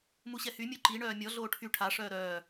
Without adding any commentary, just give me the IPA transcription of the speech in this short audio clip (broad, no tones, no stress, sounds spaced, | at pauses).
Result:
m u ɕ ɛ h y mʲ u ǃ i ɳ œː mʲ ɔ ɮ oː ʈʰ y ʈʰ a ʂ œː ɾ œː